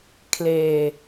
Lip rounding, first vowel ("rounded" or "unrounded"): unrounded